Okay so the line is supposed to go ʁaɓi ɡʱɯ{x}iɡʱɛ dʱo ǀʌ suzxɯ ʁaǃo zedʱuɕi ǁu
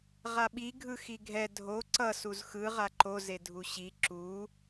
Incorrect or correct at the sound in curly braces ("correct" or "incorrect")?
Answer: correct